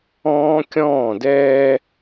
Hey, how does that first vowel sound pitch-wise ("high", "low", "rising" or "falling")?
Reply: high